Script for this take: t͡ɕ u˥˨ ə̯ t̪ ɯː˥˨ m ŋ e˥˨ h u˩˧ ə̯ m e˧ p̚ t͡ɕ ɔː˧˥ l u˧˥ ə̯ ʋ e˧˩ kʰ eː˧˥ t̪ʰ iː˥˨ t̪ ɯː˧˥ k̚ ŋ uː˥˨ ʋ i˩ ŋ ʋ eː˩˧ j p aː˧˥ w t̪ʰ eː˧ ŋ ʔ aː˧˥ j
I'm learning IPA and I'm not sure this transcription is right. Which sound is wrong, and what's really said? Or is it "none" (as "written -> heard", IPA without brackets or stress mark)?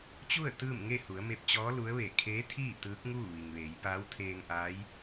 none